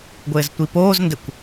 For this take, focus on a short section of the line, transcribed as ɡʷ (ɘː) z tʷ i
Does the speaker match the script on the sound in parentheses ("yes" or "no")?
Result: yes